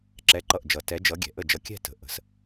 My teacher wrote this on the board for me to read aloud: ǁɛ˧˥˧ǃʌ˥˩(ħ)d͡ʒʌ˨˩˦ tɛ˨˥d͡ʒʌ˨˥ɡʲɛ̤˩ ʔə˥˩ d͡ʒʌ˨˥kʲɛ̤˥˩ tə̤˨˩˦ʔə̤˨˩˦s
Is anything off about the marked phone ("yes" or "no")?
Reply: yes